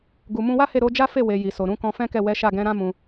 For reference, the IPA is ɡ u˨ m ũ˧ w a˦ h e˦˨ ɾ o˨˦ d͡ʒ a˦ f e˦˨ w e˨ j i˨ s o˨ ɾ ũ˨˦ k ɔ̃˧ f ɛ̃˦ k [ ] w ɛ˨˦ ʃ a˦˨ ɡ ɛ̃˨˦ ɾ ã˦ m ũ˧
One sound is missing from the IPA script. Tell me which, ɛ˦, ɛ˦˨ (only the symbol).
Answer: ɛ˦˨